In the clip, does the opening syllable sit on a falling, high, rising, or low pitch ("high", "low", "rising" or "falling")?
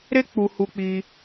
high